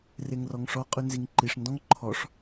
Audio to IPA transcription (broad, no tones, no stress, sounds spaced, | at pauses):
r e ŋ r ɔ ŋ ʂ ɔ qʼ ʉ n z i ŋ ǃ i ʂ n d ɔ̃ ŋ ǃʰ ɔ ʂ